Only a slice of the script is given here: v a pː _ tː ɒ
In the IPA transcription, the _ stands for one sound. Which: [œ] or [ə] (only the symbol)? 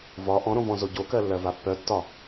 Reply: œ